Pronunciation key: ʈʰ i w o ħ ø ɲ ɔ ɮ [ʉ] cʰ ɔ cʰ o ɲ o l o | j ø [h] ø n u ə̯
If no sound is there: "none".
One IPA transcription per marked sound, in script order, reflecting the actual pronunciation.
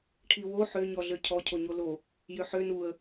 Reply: ø, ħ

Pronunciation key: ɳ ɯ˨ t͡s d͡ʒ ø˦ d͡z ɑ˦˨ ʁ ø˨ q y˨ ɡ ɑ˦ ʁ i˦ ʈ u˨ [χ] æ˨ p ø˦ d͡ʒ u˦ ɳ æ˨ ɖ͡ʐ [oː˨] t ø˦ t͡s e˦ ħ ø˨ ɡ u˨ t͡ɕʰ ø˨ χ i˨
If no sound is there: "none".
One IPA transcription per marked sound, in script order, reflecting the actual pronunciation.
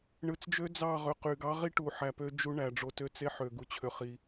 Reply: ħ, o˨

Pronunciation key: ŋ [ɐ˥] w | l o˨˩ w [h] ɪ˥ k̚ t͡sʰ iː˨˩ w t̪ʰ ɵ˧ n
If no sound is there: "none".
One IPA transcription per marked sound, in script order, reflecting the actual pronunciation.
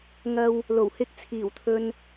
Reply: ɐ˧, h

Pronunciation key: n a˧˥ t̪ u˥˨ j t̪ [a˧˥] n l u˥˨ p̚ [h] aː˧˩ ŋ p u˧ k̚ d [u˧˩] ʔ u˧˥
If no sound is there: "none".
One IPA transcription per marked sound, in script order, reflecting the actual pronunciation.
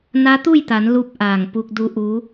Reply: a˩˧, ʔ, u˧˥

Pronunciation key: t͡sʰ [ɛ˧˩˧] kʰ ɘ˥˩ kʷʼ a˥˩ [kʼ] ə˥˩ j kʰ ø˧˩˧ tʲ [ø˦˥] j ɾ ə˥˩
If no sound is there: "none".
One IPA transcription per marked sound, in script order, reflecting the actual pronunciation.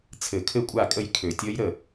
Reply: ɘ˧˩˧, kʼ, ə˦˥

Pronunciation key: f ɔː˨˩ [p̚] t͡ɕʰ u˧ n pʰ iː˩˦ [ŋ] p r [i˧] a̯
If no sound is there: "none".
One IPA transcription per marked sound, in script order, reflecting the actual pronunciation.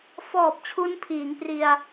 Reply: p̚, ŋ, i˧

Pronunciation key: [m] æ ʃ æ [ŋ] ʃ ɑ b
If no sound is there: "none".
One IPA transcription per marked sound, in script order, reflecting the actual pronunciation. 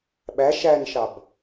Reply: ɓ, n

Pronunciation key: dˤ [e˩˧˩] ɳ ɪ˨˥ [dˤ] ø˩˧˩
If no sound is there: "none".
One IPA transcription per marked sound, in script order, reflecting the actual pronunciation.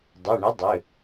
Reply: e˩˧˩, dˤ

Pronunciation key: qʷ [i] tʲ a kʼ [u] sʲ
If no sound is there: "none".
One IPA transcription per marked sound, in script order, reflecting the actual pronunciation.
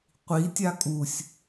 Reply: i, u

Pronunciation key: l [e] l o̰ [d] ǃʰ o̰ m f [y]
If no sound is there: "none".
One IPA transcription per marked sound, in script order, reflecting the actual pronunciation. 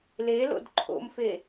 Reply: e, d, e

